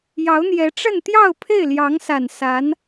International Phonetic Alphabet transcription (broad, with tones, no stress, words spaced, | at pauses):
jɑ˧˥ʊ̯n̪jɛ˧˥ ʈ͡ʂə˥˧nt̪jɑ˥˧ʊ̯ pʰe˥˩ɪ̯ljɑ˧˥ŋsa˨˩n sa˧˥n